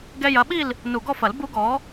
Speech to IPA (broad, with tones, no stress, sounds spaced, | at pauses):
ɡ ɛ˧ j ɐ˩˥ ɓ i˥˨ l | n u˨˩ ɡ ɔ˥˨ f ɐ˨˩˦ l b u˧˥ ɡ ɔ˩˥